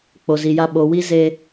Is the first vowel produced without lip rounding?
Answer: no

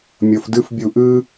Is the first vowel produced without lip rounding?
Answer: no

